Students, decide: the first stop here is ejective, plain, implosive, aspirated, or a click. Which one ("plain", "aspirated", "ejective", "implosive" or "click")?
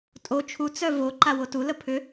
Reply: ejective